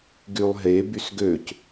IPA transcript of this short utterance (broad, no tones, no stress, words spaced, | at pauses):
ɡylˠɦe bysɡøc